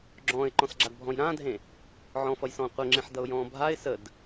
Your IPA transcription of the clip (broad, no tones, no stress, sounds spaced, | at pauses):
ɡ͡ǁ ɔ̃ː ɪ̯ ǃ ɔ̃ s ɡ͡ǁ a d bʱ ɔ̃ j ɾ ãː dʱ ẽ | ʕ ɔ̃ f ʌ j s ɔ̃ː qʷ ə ŋ͡ǁ ẽ ħ d ʌ ʊ̯ j ɔ̃ː bʱ a ɪ̯ s ə d